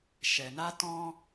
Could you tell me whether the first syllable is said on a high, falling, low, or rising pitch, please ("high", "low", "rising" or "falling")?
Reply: low